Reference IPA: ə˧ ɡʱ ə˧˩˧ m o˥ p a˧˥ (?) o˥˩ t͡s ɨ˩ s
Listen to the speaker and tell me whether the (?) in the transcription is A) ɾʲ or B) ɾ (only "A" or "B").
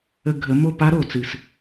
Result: B